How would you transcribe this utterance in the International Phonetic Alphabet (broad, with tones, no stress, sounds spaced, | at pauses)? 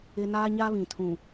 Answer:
ɪ˦ n aː˦ ɲ a˦ β ĩ˨ tʰ ũ˨